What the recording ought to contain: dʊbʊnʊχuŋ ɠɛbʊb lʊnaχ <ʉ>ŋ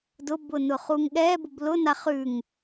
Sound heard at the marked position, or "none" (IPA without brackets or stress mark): ʉ